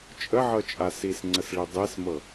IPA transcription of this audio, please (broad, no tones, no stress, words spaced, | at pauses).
t͡ʃʼəʕɤt͡ʃʼa sisŋ͡ǀəsɭi dˤesmɤ